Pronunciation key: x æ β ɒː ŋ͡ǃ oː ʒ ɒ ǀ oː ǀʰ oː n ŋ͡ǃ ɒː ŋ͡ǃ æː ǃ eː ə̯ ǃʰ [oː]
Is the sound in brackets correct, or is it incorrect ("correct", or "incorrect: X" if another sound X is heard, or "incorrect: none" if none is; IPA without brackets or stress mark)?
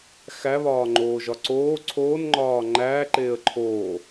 correct